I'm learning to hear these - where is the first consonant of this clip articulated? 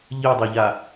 palate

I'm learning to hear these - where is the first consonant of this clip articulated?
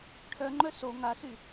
retroflex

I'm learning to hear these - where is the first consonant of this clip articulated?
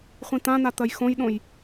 uvula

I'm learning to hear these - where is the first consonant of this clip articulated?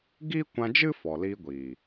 velum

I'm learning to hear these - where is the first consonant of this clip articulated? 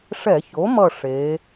retroflex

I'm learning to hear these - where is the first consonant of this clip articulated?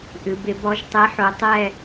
throat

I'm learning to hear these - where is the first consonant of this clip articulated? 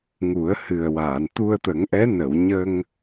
velum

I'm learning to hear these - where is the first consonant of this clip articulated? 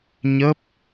palate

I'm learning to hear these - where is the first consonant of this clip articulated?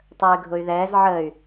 tongue tip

